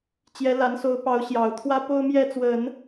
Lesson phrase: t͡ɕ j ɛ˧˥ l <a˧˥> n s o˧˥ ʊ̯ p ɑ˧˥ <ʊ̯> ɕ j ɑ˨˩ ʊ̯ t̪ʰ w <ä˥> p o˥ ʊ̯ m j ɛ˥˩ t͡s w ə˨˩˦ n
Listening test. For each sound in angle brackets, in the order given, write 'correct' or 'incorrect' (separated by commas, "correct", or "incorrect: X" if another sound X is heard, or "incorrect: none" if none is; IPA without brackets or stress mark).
correct, correct, correct